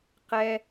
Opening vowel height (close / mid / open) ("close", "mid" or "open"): mid